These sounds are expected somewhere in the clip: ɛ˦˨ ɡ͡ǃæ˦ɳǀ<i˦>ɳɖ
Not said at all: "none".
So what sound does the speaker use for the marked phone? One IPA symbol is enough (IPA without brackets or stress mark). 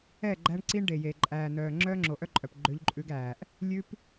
i˦